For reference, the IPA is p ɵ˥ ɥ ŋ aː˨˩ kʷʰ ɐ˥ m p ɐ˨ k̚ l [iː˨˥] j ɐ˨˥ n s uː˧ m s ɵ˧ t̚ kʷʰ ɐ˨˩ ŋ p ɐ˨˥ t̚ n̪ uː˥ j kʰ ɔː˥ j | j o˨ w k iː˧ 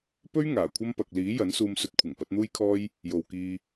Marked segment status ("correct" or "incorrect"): correct